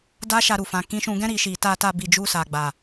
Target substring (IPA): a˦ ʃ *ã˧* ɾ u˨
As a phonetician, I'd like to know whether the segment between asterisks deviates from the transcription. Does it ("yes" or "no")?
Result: yes